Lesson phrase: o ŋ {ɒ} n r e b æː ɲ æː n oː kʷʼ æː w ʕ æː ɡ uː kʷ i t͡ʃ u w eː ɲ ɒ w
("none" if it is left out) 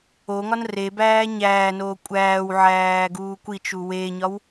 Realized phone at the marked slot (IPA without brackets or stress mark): ɒ